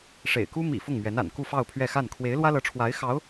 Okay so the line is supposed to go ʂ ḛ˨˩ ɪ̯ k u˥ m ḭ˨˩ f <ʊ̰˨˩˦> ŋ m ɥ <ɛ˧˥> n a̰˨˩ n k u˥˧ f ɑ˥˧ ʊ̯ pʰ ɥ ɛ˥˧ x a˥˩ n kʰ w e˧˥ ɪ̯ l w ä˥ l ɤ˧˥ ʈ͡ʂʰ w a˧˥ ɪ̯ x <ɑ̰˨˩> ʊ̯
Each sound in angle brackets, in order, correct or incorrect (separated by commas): incorrect, correct, incorrect